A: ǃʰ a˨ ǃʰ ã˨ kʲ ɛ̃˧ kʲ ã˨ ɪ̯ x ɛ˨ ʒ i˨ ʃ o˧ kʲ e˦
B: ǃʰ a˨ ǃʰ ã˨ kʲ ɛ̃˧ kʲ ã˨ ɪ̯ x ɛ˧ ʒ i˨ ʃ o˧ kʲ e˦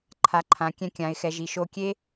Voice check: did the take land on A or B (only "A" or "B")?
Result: A